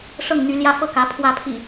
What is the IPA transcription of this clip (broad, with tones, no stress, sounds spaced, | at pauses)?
ʂ ɤ˥˨ ŋ n̪ y˨˦ l j ä˦ f ɤ˥˨ k ä˨˦ pʰ w ä˨˦ pʰ ḭ˨˩